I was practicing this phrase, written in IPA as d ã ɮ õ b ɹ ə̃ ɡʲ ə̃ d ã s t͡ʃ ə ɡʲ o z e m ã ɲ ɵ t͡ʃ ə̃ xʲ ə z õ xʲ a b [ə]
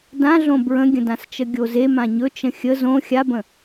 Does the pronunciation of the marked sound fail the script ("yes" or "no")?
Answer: yes